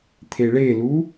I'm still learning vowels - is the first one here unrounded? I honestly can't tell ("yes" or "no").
yes